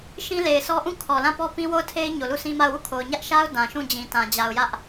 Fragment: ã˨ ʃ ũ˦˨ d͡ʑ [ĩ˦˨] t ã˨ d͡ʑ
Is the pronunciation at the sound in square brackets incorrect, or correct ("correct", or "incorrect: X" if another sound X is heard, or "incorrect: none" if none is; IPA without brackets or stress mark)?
incorrect: ĩ˨